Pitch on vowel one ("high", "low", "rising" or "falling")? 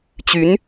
rising